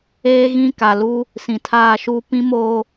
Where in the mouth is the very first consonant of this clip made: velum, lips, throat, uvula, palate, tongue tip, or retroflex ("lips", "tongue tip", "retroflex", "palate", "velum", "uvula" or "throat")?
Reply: velum